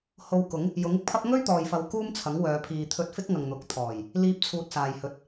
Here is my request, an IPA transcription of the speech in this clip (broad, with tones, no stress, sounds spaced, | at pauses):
h o˧ w k ʊ˨˥ ŋ | j ʊ˨˥ ŋ ɪ˥ k̚ pʰ ɐ˥ p̚ ŋ ɵ˥ ɥ t̪ ɔː˨ j f ɐ˨˧ w k uː˥ m t͡sʰ ɐ˨˥ ŋ w œː˨˧ pʰ iː˨ t̪ʰ ɵ˧ t̚ f ɪ˥ k̚ ŋ ɐ˨ ŋ n̪ ʊ˨ k̚ t̪ʰ ɔː˨˩ j | l iː˧ p̚ t͡sʰ uː˨ t̚ s aː˨ j h ɵ˨˥ t̚